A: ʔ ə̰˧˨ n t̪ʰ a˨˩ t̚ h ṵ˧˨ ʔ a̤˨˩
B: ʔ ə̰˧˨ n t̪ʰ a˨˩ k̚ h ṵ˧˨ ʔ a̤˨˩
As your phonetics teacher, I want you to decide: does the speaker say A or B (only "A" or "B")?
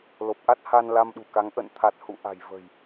A